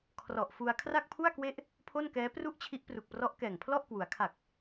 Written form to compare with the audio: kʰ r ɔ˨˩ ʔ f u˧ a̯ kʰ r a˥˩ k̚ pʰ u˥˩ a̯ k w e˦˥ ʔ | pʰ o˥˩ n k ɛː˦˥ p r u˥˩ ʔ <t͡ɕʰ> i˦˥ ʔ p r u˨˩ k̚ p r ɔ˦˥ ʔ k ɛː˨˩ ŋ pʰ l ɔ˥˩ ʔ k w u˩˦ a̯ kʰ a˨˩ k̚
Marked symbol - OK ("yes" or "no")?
yes